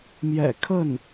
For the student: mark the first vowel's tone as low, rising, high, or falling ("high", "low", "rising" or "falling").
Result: low